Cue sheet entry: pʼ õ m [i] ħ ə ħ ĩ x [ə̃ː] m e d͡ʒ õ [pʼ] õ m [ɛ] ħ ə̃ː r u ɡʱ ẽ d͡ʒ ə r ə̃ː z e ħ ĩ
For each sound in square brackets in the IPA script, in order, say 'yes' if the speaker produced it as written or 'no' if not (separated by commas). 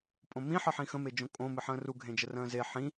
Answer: no, no, no, no